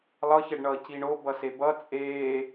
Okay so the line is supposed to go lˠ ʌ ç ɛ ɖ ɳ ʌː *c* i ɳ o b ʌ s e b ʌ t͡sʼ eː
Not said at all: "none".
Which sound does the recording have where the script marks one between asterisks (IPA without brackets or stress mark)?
c